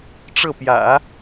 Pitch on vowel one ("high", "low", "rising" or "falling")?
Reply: falling